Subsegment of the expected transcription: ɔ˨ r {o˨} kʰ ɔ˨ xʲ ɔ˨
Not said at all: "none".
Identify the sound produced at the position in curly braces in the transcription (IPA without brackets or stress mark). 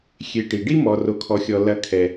o˨